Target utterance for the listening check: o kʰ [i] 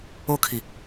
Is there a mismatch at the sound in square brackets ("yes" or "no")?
no